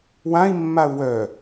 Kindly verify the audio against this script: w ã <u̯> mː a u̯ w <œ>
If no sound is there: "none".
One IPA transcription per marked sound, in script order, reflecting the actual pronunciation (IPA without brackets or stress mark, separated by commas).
i̯, œ